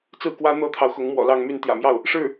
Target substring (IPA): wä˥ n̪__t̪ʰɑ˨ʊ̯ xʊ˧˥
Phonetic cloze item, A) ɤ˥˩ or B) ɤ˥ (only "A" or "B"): B